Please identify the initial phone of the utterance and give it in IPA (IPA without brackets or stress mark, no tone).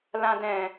l